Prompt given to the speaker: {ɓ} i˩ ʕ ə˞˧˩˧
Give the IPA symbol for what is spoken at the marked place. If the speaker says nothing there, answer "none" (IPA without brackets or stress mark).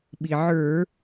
ɓ